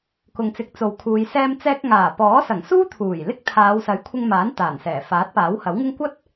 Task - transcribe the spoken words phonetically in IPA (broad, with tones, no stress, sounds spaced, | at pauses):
k ʊ˨ ŋ t͡s ɪ˨˥ k̚ t͡s o˨ w kʰ uː˨˧ j s ɛː˧ m t͡s ɛː˧ k̚ ŋ aː˨˩ p ɔː˨˥ s ɐ˨˩ ŋ s uː˥ t̪ʰ uː˨˩ j l ɪ˥ k̚ t̪ʰ aː˨˧ w s ɐ˨˥ j kʷʰ ɪ˧ ŋ m aː˨˥ n t̪ aː˨˩ n s ɛː˨˩ f aː˨˥ t̚ p aː˨˥ w h ɐ˨˥ w ŋ ɪ˥ ŋ kʷ ɐ˥ t̚